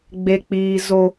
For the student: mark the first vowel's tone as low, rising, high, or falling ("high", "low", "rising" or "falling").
high